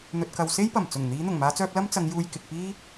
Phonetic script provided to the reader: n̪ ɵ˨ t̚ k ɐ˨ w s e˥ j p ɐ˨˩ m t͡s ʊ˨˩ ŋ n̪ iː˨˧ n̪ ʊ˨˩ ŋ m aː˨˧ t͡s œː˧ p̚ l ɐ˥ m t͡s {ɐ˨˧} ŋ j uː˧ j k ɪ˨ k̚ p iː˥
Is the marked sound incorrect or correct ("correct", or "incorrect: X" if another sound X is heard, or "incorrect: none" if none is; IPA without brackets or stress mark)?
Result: correct